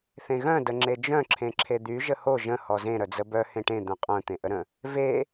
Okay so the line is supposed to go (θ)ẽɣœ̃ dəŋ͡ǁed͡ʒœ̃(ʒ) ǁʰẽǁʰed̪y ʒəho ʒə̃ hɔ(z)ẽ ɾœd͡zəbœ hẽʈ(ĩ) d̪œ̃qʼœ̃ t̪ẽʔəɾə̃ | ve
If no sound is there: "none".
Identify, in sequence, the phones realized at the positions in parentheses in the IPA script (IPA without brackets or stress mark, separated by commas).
θ, none, z, ẽ